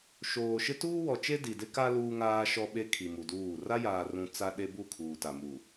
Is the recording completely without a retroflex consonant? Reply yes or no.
yes